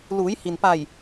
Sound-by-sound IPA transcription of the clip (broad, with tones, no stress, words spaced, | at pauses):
luː˩˧jhi˩npa˧˩j